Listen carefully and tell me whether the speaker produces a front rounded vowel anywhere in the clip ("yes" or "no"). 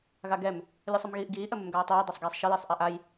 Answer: no